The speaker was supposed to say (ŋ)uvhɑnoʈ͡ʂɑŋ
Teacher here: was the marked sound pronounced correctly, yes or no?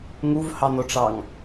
yes